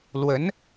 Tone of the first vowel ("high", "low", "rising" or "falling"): rising